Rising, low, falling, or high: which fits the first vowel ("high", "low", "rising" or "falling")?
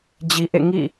low